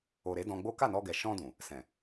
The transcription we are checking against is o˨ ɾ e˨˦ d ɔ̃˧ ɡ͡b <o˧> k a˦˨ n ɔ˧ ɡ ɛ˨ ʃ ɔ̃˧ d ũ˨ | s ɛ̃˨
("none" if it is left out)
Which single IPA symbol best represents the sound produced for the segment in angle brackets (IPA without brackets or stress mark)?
o˦